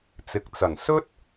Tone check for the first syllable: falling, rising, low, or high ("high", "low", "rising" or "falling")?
low